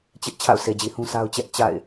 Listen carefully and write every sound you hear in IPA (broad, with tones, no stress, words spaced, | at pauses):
t͡ɕɪ˦ʔ t͡ɕʰa̰˦˨ʊ̯se˨d͡ʑi˨ hũ˦ sa˦ʊ̯t͡ɕɛ˦ʔ t͡ɕa̰˦˨ɪ̯